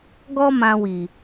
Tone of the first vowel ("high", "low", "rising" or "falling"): high